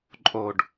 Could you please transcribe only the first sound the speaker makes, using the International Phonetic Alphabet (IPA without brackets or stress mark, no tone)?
ǃʼ